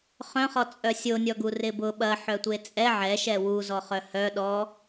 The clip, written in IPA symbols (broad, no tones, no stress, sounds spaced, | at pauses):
χ œ̃ χ ɔ t͡sʼ œ sʲ o nʲ ɔ ɡ u r ɪ b ʊ ɓ ɐ ħ œ tʷ e t͡sʼ ɛ ʕ ɛ ʃ ɛ w u z ɔ χ œ h œ ɗ ɔ